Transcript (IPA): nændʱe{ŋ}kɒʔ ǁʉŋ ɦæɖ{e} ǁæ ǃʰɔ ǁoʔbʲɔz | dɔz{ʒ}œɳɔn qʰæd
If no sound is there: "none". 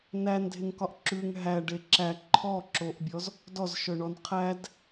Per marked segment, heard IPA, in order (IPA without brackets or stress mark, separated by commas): ŋ, e, ʃ